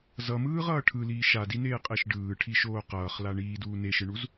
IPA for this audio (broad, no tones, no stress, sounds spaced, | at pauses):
z ʌ m ɯː ʁ ʌː ʈʰ ɯ l iː ʃ a d i n eː qʼ e ʃ ɖ ɯː ʈʰ i ʃ oː q ʌː χ l a ɳ iː d uː n e ʃ ɯ ɳ u z